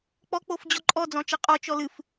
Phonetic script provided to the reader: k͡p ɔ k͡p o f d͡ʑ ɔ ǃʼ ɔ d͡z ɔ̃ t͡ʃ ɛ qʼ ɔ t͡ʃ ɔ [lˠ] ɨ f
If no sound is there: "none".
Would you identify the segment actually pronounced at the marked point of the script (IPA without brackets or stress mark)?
l